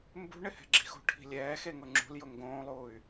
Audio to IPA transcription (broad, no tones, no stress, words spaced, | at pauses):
mbṳ ɳɪhɛ̤ɡ͡ǁi̤xo̤ ʈʰi̤lʲɛːxe ŋʊŋ͡ǁṳljʊ ŋɡõːlˠuːy̯